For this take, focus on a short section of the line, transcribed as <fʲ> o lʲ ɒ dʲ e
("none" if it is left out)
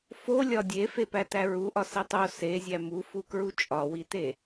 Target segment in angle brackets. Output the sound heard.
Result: f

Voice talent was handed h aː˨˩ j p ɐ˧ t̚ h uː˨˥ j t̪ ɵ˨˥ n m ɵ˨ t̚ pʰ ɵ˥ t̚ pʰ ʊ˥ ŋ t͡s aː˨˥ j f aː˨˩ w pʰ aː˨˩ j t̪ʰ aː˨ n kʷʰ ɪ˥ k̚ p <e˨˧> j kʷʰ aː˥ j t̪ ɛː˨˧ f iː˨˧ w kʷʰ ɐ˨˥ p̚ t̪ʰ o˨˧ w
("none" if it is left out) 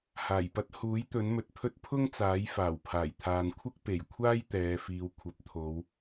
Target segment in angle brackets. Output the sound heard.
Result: e˨˩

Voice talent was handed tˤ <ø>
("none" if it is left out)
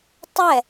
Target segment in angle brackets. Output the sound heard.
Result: ɛ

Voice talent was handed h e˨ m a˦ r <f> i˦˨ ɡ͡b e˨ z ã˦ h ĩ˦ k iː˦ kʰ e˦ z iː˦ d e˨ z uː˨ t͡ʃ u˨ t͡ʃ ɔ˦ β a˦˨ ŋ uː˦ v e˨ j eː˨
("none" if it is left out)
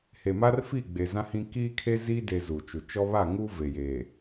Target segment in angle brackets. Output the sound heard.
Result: f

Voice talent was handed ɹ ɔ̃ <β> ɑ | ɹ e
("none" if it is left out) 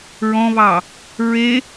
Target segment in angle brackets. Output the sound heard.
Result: β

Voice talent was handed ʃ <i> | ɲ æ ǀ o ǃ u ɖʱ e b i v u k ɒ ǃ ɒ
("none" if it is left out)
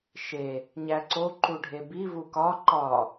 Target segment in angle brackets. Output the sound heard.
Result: e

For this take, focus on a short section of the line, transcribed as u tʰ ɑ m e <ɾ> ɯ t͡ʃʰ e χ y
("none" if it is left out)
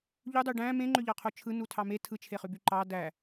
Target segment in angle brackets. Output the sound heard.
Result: tʰ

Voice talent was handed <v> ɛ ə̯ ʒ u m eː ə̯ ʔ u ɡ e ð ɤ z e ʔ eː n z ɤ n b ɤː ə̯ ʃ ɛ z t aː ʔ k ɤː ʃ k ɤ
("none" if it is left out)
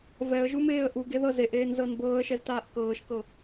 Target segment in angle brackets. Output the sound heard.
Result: v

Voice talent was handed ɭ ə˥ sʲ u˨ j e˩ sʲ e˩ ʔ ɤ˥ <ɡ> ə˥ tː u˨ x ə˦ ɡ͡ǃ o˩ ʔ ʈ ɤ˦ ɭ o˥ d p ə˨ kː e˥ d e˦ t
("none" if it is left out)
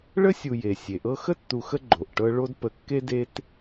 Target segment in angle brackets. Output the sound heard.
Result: x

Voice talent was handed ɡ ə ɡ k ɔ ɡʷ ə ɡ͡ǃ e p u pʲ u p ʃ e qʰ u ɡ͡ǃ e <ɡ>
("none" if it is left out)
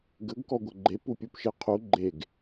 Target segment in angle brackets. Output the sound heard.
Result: ɡ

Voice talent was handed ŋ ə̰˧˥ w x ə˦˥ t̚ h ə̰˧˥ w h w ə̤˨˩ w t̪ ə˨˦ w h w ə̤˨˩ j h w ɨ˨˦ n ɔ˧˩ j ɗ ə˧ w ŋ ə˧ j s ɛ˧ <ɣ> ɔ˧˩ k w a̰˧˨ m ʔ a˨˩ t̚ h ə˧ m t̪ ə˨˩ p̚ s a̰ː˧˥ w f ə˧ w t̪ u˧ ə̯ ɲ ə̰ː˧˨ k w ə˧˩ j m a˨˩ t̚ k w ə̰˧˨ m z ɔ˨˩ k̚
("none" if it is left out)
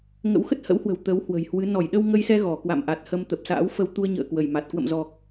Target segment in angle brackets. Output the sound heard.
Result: ɣ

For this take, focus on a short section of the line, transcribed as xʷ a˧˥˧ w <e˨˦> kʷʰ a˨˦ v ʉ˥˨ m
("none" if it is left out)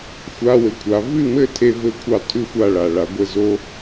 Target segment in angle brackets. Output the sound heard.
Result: ɘ˨˦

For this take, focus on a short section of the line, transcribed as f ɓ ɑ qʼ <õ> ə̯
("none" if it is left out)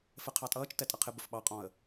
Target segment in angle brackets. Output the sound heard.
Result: ɔ̃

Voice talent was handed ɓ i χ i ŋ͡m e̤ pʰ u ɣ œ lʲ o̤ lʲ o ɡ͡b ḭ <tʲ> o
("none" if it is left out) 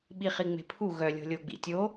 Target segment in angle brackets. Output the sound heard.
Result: tʲ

